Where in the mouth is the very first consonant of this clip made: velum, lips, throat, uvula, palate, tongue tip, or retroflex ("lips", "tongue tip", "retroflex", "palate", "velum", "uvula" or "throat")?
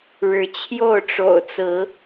retroflex